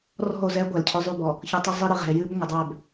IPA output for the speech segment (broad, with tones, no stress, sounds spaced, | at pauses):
r ɔ̤˦˨ o̯ z ɛ˦ ɡʷ ɛ˨ l cʰ ʏ˦ zˤ y˦˨ b ɔ˨ | ç ə˨ tˤ ə˦ zˤ i˦ ɾ ɨ˨ ʁ ɛ̤˨ e̯ j ɨ˦ b ŋʷ ə˨ dˤ ɛ˦˨ b